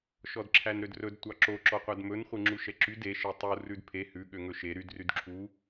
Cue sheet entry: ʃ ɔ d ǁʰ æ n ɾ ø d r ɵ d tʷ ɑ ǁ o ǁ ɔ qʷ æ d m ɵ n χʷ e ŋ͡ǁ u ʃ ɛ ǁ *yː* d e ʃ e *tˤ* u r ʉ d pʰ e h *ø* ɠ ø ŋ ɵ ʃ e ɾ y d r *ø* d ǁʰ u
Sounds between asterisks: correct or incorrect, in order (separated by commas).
incorrect, correct, incorrect, incorrect